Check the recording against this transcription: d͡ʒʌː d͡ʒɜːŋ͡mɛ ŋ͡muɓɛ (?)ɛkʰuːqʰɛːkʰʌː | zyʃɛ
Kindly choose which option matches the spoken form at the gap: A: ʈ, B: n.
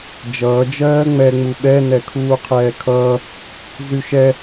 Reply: B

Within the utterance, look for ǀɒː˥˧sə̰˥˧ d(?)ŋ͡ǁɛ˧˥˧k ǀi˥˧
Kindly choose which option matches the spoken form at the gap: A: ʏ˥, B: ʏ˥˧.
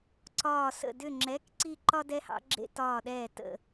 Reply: B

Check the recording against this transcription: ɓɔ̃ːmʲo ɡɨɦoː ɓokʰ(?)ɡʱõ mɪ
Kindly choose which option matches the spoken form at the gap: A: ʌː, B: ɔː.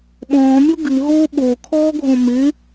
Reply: B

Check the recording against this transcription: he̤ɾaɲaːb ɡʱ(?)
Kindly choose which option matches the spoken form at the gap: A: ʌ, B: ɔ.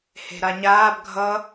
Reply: A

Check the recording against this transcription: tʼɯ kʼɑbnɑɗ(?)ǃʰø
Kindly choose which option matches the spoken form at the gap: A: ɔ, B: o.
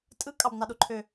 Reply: B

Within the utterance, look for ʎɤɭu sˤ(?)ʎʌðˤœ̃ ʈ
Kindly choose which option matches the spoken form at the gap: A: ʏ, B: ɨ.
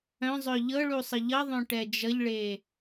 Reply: B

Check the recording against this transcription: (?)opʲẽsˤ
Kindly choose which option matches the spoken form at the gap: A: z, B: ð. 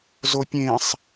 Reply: A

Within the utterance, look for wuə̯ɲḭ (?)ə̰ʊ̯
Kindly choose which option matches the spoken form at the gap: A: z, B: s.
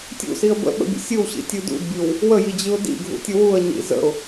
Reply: A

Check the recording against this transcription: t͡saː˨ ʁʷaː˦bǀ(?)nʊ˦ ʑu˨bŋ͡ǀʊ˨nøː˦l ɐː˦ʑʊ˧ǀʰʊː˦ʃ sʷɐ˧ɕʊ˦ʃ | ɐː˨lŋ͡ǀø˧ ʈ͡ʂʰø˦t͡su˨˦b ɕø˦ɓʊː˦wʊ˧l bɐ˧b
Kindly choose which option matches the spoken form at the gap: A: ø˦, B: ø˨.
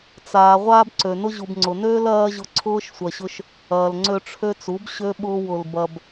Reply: B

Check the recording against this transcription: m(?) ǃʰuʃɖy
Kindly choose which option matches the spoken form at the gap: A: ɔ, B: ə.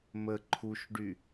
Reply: B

